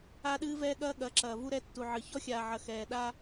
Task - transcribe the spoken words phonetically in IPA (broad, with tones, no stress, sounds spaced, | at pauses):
a˦ ɗ ɨː˦ v ɛː˦ ɠ ɐː˦ ɠ ɐ˨˦ ǁ ɐː˨ v u˦ ɾ ɛ˦ tː u˨ ʕ ɨ˨ ç ɔ˦ xʲ aː˨ ʕ ɐ˨ x ɛː˨ ɗ a˦